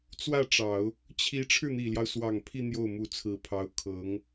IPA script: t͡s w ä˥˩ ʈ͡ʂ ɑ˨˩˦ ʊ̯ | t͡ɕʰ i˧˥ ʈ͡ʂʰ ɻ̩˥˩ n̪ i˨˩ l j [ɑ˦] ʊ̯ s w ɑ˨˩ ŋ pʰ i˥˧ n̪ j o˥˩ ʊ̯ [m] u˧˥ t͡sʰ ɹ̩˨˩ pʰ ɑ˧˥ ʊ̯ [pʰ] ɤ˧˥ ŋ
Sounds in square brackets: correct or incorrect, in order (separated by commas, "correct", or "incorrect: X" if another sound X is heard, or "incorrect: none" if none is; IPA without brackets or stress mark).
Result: correct, correct, incorrect: kʰ